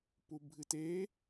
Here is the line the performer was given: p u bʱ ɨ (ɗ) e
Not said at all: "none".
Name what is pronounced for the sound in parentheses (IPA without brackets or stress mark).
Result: t